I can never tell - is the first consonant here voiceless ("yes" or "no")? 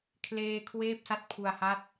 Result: yes